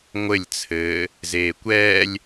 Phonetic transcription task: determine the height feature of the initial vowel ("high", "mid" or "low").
mid